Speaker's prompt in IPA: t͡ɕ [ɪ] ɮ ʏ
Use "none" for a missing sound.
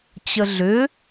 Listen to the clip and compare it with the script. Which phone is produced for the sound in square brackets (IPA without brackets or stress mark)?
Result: ə